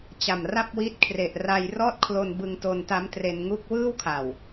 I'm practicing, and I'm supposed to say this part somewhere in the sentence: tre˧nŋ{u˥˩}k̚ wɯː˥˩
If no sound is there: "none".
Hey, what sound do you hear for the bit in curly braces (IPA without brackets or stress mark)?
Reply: u˥˩